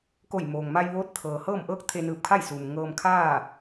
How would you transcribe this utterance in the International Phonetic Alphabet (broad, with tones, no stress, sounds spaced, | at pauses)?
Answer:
k o˧˩ j m oː˩ ŋ m a˧ j ʋ oː˧˥ t̚ t̪ʰ ɤː˩ h ɤː˥˨ m ʔ ɤː˥˨ k̚ t̪ʰ e˧ n ɯː˧˩ p̚ kʰ a˥˨ j s uː˩ m ŋ ɤː˧ m kʰ aː˥˨